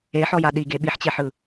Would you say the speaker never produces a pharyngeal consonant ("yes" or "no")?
no